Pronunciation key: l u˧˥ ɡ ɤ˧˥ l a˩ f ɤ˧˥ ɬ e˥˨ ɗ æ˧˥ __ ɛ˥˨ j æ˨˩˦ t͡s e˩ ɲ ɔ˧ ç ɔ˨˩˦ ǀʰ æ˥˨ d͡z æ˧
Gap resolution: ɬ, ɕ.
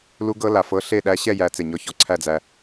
ɕ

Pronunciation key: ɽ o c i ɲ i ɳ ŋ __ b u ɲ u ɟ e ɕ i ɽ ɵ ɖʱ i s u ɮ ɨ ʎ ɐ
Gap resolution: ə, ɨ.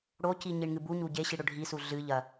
ɨ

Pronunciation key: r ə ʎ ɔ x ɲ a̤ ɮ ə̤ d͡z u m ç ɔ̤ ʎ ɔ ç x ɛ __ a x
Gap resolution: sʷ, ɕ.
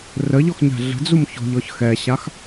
ɕ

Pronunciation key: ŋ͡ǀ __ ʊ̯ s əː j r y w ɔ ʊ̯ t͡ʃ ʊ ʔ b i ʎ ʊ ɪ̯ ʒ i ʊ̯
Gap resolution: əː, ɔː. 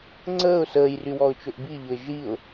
əː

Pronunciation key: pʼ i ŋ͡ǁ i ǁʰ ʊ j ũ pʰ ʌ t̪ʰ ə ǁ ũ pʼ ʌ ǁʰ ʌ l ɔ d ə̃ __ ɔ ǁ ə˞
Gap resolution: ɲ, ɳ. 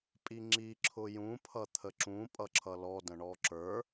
ɳ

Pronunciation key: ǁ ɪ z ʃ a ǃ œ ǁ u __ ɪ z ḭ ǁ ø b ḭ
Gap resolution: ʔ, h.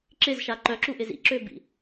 ʔ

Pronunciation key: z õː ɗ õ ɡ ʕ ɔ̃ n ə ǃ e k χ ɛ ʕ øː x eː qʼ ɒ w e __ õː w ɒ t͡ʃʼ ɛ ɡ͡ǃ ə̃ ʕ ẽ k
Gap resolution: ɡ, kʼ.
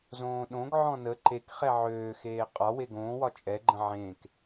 ɡ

